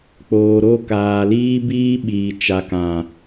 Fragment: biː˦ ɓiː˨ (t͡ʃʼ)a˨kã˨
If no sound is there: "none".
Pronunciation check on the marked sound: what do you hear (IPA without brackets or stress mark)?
t͡ʃ